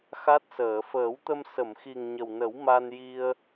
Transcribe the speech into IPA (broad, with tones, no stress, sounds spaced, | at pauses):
x a˦˥ t̚ s əː˨˩˨ f əː˨˩˦ w t̪ ə˧ m s ə˨˩˨ m x i˨˩ ŋ ɲ ə˨˩ w n ə˨˩˦ w m a˧ n j i˧ ə̯